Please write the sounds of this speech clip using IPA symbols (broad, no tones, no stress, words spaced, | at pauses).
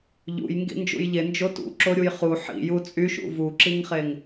ʎṵj ŋɡḭnd͡ʒṵjʎe nd͡ʒotṵǁo ɾʲujχu ħḭ jut͡sʼyʃṵ vuǁiŋχeŋ